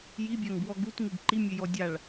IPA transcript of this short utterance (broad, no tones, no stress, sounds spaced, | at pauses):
j i bʲ a ŋ b w ɔ ɡ u t ŋ u ɡ ǃ i mʲ ø j ɔ dʲ a ɭ